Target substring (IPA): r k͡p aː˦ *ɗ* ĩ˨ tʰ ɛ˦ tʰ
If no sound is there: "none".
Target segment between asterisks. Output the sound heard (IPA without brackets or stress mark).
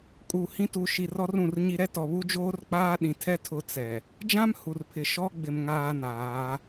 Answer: ɗ